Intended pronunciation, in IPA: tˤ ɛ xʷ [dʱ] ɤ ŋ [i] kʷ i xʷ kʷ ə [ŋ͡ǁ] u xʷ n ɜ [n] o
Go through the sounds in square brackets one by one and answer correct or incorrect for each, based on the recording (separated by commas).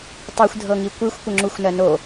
correct, correct, correct, correct